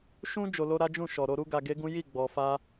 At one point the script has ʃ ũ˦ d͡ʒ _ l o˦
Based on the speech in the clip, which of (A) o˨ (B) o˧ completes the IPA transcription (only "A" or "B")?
B